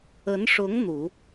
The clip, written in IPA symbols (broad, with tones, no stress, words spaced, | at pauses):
ə˧˥nʂʊ˧˥ŋ n̪u˨˩˦